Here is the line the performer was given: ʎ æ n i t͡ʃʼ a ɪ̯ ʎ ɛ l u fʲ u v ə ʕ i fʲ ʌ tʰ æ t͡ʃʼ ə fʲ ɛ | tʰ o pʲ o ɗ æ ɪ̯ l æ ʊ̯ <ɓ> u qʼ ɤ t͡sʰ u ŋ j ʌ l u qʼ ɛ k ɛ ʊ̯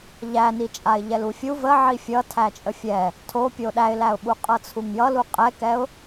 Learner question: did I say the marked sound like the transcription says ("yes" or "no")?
yes